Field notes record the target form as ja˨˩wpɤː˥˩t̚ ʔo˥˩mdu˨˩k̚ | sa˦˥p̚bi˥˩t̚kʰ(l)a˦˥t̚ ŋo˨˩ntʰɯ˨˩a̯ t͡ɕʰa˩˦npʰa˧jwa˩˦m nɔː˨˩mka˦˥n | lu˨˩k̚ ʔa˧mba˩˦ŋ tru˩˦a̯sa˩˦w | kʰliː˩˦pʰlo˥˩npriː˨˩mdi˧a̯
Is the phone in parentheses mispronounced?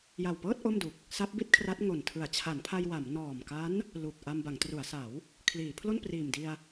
yes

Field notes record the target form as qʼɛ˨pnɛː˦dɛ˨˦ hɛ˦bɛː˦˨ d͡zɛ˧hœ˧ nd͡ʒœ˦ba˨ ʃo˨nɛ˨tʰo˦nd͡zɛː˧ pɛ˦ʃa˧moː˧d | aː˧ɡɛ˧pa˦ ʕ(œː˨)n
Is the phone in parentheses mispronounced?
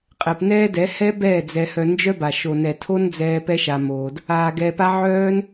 yes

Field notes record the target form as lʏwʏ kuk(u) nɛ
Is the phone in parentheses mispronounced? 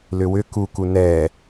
no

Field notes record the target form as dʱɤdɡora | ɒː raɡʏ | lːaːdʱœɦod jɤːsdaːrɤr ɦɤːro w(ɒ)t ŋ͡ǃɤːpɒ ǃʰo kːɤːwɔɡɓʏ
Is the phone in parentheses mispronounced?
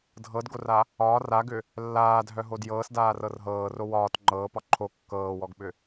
yes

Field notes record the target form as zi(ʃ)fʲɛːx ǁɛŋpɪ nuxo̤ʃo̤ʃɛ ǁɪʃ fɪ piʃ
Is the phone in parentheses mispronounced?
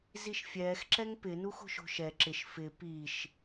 no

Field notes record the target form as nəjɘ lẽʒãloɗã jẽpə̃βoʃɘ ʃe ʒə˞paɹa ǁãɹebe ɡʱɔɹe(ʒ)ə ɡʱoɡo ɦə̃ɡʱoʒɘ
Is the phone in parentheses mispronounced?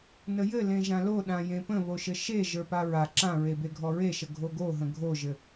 yes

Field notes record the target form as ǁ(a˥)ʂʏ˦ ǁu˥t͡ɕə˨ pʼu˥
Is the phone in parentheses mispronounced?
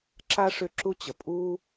no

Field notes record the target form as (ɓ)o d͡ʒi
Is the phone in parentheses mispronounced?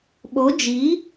no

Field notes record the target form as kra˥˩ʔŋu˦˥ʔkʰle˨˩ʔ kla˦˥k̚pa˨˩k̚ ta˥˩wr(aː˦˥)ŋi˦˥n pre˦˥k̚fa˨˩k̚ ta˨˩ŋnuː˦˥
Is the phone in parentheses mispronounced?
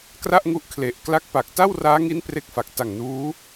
no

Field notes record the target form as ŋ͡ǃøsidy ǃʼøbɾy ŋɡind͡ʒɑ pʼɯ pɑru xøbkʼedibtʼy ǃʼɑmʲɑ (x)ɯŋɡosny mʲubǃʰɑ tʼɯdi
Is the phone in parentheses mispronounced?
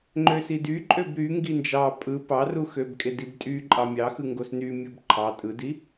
no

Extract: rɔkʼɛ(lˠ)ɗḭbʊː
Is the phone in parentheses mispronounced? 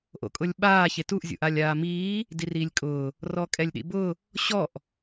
yes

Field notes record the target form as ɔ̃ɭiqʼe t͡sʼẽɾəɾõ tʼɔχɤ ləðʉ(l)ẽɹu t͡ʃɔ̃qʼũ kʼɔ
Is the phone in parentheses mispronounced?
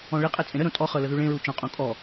yes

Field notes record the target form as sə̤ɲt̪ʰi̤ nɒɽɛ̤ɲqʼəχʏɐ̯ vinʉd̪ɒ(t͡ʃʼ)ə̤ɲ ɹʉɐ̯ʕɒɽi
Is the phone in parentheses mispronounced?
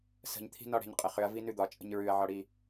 no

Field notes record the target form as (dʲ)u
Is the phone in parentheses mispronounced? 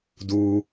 yes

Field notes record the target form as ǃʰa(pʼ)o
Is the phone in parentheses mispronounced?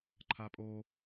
no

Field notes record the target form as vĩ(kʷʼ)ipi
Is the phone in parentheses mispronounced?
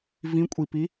no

